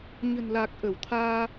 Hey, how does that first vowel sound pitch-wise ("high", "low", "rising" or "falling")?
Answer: low